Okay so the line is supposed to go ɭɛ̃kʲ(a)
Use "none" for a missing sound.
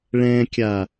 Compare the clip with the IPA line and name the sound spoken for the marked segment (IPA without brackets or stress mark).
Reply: a